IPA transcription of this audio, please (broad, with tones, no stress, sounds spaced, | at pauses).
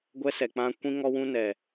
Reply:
ɡʷ ɛ˦ s ɛ˨ k͡p ã˦ kʷ ĩ˦ ŋ ɔ˦ w ũ˦ n ɛ˨